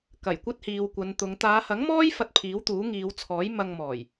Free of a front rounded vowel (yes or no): yes